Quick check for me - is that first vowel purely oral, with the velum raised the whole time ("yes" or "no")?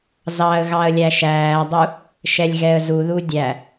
yes